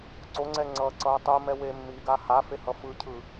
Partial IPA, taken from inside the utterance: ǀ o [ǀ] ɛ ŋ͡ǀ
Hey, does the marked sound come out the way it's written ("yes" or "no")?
no